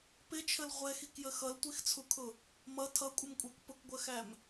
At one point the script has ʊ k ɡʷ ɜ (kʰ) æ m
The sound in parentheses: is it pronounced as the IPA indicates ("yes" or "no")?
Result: no